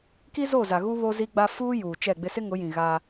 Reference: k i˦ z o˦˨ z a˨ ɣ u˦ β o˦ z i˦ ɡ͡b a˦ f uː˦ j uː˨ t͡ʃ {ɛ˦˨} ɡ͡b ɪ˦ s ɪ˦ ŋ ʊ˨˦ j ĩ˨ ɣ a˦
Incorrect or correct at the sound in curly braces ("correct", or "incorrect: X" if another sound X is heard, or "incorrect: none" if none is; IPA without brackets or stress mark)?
correct